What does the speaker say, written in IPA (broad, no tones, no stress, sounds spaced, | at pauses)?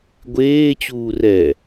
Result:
ɡʷ eː t͡ɕ uː r ɛ